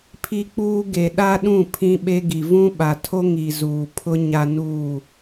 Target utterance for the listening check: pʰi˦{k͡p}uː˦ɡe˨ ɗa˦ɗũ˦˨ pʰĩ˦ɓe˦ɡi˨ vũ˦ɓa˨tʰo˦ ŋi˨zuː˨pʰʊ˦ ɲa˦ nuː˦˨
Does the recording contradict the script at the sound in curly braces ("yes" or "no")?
no